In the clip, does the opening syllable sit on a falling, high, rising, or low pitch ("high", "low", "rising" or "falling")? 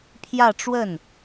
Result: falling